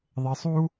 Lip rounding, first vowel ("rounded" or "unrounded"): unrounded